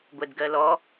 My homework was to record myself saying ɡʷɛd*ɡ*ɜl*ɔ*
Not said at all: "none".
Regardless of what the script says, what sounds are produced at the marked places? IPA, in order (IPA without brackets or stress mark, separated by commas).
ɡ, ɔ